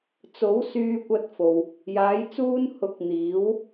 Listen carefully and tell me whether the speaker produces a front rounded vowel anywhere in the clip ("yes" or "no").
yes